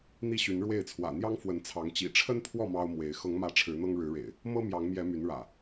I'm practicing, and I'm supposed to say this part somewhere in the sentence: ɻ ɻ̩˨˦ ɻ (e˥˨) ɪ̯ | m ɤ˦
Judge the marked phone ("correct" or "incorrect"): incorrect